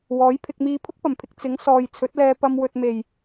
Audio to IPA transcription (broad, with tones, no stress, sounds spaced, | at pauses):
w ɔː˨˥ j pʰ ɪ˧ k̚ m iː˧ pʰ ʊ˥ k̚ p ɐ˨˩ m pʰ ɪ˨ k̚ t͡s ɪ˨˥ ŋ s ɔː˨ j t͡sʰ ɵ˨˥ t̚ l ɛː˧ p ɐ˧ m w ɵ˨ t̚ m e˨˩ j